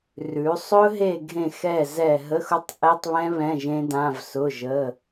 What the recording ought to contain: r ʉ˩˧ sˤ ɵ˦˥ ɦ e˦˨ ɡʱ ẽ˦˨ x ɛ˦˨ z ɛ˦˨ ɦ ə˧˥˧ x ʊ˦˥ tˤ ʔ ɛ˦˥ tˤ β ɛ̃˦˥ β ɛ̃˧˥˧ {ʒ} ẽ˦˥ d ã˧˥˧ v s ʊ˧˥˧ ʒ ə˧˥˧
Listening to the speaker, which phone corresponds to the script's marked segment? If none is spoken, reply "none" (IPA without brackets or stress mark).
ʒ